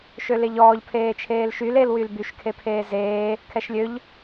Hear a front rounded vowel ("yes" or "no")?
yes